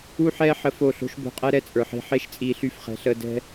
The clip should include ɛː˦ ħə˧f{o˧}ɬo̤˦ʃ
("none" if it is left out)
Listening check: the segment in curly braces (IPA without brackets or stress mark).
o˦˨